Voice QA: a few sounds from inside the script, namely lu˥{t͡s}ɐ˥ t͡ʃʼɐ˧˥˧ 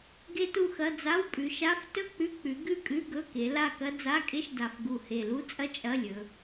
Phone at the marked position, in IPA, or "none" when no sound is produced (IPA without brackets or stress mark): t͡sʼ